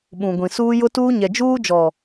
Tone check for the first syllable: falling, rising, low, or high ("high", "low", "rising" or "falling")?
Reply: low